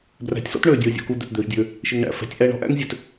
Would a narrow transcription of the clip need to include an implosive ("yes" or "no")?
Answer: no